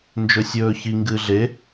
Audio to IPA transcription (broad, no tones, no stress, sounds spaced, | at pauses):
n d͡ʒ ɵ sʲ ɵː ç i ŋ ɡ ɨː ɮ e